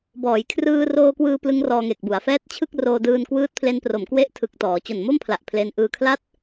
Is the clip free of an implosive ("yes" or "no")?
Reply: yes